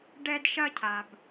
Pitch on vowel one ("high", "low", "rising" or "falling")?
high